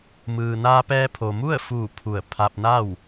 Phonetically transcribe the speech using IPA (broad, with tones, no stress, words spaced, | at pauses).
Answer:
mɯː˩naː˧pɛː˧ pʰo˩mu˥˨ə̯fuː˧˩ pʰu˧˩ə̯ pʰa˧p̚na˥˨w